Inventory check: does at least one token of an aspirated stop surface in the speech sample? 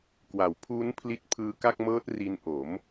yes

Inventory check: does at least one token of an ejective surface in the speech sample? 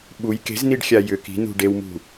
no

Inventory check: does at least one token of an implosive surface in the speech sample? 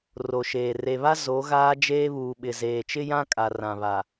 yes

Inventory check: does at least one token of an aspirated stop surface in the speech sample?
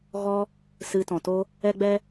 no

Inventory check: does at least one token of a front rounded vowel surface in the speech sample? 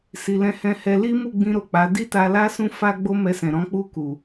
no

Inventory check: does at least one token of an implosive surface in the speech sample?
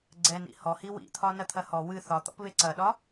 yes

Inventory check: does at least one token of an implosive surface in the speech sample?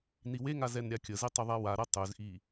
no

